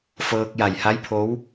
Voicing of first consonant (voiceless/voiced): voiceless